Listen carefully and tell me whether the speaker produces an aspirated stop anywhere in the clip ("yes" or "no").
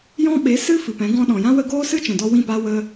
no